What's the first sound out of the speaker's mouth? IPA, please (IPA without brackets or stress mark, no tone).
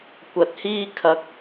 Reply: kʷ